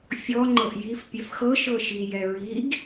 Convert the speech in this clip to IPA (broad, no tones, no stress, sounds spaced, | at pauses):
fʲ ɔ ŋ͡ǃ ɤ ʔ j i f pʲ ɛ f x ɤ ʃ ɤ ʃ i j ɛ ɹ i ɡ